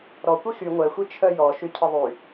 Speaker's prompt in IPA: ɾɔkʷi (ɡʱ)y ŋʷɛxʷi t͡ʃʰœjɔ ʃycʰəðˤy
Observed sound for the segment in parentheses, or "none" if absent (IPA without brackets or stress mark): x